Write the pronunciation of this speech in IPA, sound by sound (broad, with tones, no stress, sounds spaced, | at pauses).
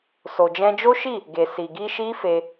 s o˨ d͡ʒ ɛ̃˧ d͡ʒ o˦ ʃ i˦˨ | ɡ e˨ s i˨ ɡ i˧ ʃ i˦ f e˧